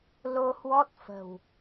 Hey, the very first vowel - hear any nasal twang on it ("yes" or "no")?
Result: no